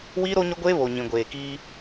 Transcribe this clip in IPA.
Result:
w iː˦ ɾ o˦ ɲ ʊ˦ ɡʷ eː˦ β o˨ ɲ ĩ˨ ɡʷ eː˨ k iː˦

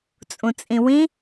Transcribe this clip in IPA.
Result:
t͡sʼ ũ t͡sʼ ĩ w ĩ

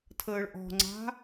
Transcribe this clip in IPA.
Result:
tʰ əː ɭ ʔ ɔ̤ ŋ͡ǀ a̤

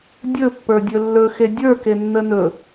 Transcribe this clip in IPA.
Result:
dʲ ɵ pː ə˞ dʲ ɵ lː ɵ x e dʲ ə˞ k e nː ə n ɵ

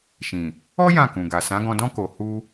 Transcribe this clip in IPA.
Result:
ʃ ĩ˨ | ɔ˦ j ã˦˨ k ũ˨ ɡ a˨ s ã˨˦ ɡ ɔ̃˧ d ɔ̃˦ k o˧ h u˦

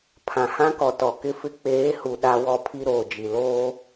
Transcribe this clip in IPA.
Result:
pʰ ã˨ h ã˦ k ɔ˨ t ɔ˨ k ɪ˦ f ɪ˦ k͡p eː˨˦ h u˨ ɗ a˦ w ɔ˦ pʰ i˦ ɾ oː˨ d͡ʒ i˨ l oː˦

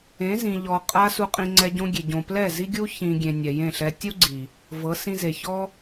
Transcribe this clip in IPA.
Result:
ẽ˨˦ z ĩ˨ ʎ ɔ˨ qʼ a˦ s u˧ qʼ ĩ˧ ŋ͡ǀ ɛ˧ ɟ õ˧ ɡʲ e˨ ɟ õ˨ p l ɛ˦˨ z i˧ ɡʲ u˧ ç ĩ˨ ɡʲ ẽ˨ nʲ ɛ˨ j ẽ˦˨ ɬ ɛ˧ tʲ u˦ ɡ͡ǀ i˨ | v ɤ˨˦ s ĩ˧ z e˨ ç ɔ˦

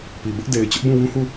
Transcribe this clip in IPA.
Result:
p i˨ b ʊ˦ ʔ d e˨ ɪ̯ t͡ɕ ʊ˦ ʔ b ũ˦˨ w ũ˦ h u˦˨

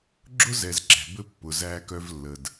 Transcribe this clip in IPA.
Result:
ɡ͡ǁ ʊ˦ z ɛ˨ z ǁ ɛ̤˨ b ɘ˦ pː ʊ˨ z æː˦ k œ˦ v lː ə˨ d

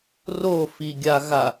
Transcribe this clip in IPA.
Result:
r o f i ɡʲ a ɣ a

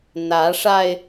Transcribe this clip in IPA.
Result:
n̪ ä˨˦ ʂ a˧ ɪ̯

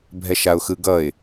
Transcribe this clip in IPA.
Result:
bʱ ɛ ʃ a ʊ̯ x ɯ ɡ ʌ ɪ̯

